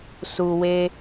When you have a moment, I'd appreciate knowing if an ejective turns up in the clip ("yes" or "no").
no